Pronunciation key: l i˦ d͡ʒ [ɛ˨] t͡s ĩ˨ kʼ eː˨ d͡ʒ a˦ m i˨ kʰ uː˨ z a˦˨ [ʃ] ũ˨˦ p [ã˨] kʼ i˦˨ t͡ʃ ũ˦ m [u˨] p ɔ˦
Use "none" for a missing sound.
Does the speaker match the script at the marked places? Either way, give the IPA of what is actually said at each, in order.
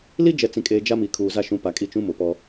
ɛ˨, ʃ, a˨, ʊ˨

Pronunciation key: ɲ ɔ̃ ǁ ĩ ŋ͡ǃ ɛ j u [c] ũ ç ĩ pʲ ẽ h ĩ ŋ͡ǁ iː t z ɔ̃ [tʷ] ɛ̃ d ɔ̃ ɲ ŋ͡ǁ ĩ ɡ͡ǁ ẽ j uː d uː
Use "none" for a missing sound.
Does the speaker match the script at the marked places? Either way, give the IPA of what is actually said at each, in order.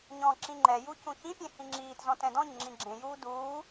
c, t

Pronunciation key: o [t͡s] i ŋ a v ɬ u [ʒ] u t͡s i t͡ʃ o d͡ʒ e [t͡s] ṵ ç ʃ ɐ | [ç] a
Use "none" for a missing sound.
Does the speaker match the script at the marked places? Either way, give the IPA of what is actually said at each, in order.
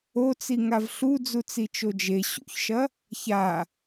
t͡s, d͡z, ɕ, ç

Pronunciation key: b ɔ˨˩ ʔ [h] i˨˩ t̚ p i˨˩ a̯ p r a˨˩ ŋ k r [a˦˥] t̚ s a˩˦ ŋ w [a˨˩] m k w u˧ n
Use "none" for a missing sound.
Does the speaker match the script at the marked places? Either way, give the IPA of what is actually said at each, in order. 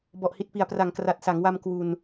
h, a˨˩, a˧

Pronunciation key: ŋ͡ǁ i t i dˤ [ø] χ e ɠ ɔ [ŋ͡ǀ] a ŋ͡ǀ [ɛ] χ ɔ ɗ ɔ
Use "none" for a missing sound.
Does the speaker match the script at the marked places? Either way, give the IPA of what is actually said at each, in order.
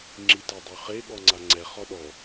ø, ŋ͡ǀ, ɛ

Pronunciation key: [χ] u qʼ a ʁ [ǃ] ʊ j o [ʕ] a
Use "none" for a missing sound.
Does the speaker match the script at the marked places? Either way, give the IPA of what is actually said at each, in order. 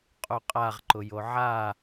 qʼ, ǃ, ʕ

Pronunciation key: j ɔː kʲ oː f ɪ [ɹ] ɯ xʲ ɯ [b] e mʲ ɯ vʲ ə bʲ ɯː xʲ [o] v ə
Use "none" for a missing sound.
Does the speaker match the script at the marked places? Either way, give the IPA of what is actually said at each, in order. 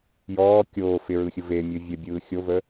ɹ, v, o

